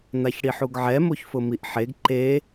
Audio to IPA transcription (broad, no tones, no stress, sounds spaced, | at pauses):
n̪ a ç ɽ i ħ u ɡ ʕ ɛ m o ç f ʊ m i ʔ ħ e ɡ ǃ e